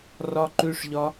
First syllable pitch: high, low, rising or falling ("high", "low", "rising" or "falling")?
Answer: high